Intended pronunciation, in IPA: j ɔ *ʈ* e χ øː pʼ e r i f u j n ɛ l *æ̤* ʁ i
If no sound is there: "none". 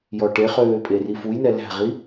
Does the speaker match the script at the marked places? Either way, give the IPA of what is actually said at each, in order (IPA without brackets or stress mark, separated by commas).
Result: ʈ, æ̤